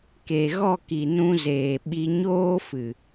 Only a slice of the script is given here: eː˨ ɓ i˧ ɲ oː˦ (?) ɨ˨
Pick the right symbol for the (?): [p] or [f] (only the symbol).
f